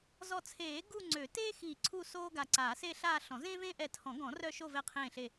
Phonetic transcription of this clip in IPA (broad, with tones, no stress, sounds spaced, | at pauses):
z ɔ˧˩ t͡sʰ eː˨˩˦ ɡ u˥˧ ŋ͡ǀ ø˨˩˦ t eː˥ x iː˧˩ ǀʰ u˥˧ s oː˥ ɡ a˧˩ ǀ aː˨˩˦ s e˥˧ ɬ aː˥˧ ɬ ɔ̃˨˩˦ z ẽː˥ v ẽː˥ ʔ ɛ˧˩ tʰ ɔ̃˨˩˦ ɡ ɔ̃˨˩˦ r œ˥˧ ʃ o˥˧ v ɛ˥˧ qʰ ẽː˥˧ ɬ e˥˧